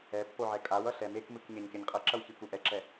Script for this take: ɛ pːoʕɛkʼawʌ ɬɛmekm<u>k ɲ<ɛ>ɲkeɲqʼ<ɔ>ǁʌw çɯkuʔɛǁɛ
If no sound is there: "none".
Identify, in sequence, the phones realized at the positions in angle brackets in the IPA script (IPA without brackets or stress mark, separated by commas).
ɯ, ɛ, ʌ